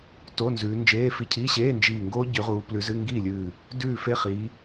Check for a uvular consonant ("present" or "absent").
present